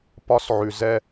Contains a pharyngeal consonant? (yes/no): yes